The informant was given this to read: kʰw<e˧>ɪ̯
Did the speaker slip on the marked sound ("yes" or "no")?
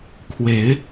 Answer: yes